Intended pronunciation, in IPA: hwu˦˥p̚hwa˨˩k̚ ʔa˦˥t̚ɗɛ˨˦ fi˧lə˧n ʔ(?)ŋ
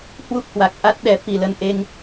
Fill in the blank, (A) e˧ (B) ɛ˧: A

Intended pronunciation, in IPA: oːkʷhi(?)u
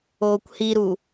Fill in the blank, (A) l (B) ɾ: B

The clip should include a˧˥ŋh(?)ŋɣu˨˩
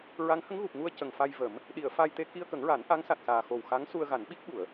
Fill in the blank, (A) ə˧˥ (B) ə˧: A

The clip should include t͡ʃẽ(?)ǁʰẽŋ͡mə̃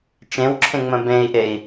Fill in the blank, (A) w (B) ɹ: A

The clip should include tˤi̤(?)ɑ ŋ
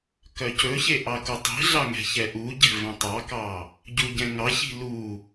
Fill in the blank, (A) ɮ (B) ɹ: A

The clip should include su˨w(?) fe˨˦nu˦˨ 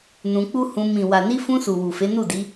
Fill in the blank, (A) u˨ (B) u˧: A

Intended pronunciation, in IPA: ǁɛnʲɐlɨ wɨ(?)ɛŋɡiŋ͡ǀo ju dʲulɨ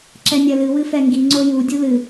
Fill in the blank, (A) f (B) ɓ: A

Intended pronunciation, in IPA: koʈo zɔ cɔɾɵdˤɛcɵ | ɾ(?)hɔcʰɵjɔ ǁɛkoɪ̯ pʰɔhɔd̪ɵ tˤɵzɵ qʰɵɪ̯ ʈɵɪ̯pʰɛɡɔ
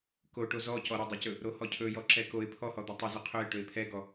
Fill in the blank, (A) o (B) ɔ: A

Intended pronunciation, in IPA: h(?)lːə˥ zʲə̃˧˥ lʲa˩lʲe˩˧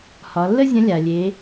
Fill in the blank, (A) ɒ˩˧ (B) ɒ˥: A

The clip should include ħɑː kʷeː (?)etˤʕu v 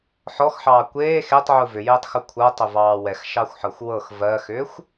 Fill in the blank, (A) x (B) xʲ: A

